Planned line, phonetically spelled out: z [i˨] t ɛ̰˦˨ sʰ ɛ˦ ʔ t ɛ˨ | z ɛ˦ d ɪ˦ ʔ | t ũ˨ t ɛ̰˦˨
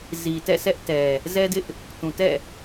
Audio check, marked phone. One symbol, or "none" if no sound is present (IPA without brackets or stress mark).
i˨